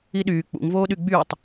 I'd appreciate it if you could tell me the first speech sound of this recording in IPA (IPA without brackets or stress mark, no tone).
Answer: i